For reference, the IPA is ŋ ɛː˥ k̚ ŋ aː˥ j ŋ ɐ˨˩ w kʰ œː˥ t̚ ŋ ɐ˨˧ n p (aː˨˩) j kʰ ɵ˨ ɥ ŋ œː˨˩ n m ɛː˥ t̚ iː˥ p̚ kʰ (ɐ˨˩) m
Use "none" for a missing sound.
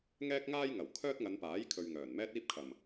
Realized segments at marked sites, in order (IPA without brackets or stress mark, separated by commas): aː˨˥, ɐ˨˩